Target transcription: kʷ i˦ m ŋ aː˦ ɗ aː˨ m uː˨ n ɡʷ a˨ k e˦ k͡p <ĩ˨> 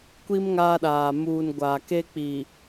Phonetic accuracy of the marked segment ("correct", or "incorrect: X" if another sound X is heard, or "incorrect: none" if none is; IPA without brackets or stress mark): incorrect: i˨